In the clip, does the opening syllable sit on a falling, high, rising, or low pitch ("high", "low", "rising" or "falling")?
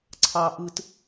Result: high